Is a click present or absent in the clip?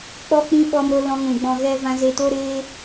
absent